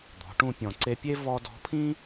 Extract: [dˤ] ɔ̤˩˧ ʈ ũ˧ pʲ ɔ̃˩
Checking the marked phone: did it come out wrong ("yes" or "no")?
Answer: yes